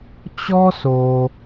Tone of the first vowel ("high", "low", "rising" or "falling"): high